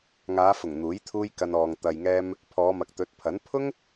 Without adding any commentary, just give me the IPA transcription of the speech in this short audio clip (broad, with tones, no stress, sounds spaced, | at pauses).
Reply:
ŋ aː˨˧ f ʊ˨˩ ŋ n̪ uː˨˥ j t̪ʰ uː˥ j k ɐ˧ n ɔː˨ ŋ t̪ ɐ˨ j ŋ ɛː˧ m | pʰ ɔː˨˧ m ɐ˨ k̚ t̪ ɵ˨˥ t̚ pʰ ɐ˨˥ n pʰ ʊ˥ ŋ